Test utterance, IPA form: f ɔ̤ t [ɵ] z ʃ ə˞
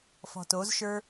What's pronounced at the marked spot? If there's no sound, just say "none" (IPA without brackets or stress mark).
o